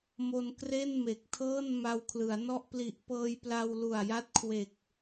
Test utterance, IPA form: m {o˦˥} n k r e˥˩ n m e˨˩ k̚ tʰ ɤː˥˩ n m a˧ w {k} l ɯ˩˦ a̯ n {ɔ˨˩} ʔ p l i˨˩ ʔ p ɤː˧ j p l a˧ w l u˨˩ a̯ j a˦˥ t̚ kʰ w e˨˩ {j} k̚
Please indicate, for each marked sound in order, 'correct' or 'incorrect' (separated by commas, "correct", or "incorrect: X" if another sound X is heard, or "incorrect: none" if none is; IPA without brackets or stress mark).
incorrect: o˧, incorrect: kʰ, incorrect: ɔ˥˩, incorrect: none